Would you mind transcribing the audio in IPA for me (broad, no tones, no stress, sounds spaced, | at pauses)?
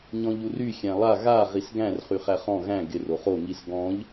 ɲ ɔ̃ ʎ u r y xʲ æ̃ lˠ a ɣ a ʁ i s ɡ æ̃ r χ y χ æ χ ɔ̃ ɣ æ̃ ɡ ɪ r o χ o ŋ i s ɡ ɔ̃ ʎ